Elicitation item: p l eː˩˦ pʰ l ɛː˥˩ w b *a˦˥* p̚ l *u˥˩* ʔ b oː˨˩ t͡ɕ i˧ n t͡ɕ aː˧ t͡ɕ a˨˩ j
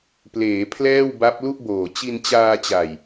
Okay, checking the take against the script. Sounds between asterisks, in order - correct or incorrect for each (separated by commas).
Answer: correct, correct